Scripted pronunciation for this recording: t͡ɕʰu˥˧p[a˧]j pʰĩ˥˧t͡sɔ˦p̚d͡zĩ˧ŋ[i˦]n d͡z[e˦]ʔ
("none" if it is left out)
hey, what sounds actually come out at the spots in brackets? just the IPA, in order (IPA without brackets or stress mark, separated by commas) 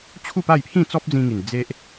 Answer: a˥˧, i˨˩, e˦